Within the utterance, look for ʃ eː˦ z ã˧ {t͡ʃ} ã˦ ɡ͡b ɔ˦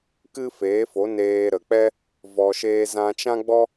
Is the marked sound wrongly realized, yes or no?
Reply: no